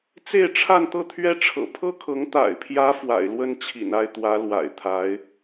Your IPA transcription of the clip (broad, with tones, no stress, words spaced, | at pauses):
t͡se˥˧ɪ̯ʈ͡ʂʰa˥˧nt̪ɤ˥˩t̪ʰɥɛ˥ ʈ͡ʂʰɤ̰˨˩pʰɤ˥kʰɤ˧˥ŋ t̪a̰˨˩ɪ̯pʰjä˧˥ fwa̰˨˩ɪ̯lwə˥n t͡ɕʰḭ˨˩na˥˩ɪ̯t̪wä˧˥ lwa̰˨˩ɪ̯t̪ʰa˧˥ɪ̯